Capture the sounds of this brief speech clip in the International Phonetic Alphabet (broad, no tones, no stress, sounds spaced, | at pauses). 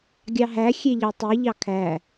ɡʲ ɑ ɦ æ xʲ e ʎ ɑ tˤ i ʎ ɑ kʰ æ